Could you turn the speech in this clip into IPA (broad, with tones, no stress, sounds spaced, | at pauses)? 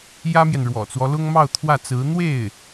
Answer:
j ä˥ m j ɛ˨ n ɻ w ɔ̰˨˩ t͡s w ɔ˦ l ʊ˥ ŋ m ɑ˥˧ ʊ̯ t̪ʰ w ä˥˩ t͡s ɹ̩˧˥ n̪ w e˥˩ ɪ̯